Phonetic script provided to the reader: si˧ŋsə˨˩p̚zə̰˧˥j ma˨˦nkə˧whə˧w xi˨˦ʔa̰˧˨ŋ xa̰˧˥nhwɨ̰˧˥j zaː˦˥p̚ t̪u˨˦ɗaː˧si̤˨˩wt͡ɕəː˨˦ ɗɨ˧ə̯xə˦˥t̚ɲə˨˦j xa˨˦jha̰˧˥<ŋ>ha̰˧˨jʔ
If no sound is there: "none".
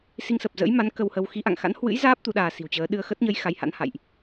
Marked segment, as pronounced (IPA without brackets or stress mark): n